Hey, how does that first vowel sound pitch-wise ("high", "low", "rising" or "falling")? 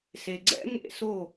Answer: low